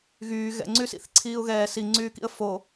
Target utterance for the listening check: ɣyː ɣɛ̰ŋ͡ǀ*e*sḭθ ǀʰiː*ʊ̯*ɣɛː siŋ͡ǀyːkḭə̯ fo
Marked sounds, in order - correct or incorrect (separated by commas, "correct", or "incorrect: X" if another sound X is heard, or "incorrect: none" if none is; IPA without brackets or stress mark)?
incorrect: y, correct